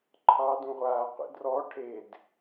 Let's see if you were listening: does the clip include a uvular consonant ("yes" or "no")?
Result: yes